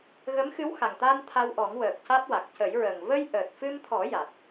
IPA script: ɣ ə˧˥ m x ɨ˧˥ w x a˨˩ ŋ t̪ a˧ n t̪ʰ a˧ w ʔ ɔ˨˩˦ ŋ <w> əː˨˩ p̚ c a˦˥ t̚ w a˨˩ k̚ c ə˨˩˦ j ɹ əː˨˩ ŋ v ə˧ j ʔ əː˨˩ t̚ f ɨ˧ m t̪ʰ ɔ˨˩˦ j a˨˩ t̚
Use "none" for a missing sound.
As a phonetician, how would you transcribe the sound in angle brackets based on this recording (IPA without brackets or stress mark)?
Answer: w